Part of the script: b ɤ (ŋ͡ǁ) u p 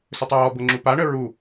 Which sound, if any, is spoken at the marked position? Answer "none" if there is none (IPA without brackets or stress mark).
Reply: ŋ͡ǁ